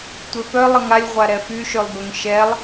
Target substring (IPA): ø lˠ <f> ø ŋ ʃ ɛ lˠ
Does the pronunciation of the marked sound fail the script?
yes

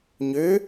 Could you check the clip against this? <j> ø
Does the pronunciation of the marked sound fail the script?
yes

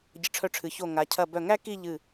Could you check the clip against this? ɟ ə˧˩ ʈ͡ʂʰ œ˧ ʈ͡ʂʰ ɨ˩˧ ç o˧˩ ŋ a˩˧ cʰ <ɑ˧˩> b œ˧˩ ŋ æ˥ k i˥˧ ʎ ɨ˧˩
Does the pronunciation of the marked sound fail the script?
yes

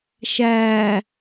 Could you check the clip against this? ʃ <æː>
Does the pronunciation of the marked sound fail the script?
no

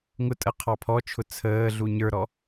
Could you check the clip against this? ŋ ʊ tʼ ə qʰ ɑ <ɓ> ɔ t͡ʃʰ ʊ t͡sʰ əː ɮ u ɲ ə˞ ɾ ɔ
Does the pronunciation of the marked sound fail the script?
yes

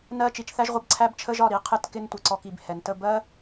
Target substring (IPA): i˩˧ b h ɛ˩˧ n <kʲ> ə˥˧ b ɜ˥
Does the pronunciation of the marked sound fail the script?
yes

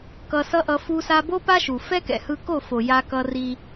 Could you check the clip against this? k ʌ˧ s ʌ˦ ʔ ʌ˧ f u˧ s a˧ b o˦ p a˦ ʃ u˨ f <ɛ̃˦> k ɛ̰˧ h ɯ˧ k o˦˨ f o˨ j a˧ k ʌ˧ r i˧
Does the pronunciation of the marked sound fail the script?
yes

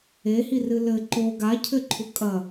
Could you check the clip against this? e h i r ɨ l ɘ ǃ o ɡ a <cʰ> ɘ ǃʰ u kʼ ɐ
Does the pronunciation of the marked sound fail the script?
no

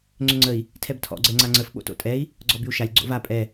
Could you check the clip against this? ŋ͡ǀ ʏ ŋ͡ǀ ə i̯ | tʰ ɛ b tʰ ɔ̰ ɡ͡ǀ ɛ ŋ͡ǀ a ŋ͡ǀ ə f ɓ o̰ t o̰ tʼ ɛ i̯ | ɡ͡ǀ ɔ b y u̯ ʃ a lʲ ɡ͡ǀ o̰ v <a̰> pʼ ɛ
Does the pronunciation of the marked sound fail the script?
yes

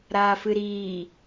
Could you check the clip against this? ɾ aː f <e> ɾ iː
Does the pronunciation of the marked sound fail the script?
yes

